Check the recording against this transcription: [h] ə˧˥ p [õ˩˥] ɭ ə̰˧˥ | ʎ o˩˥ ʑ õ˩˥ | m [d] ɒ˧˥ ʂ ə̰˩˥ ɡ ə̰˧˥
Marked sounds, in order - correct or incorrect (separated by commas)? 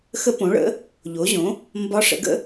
incorrect, correct, incorrect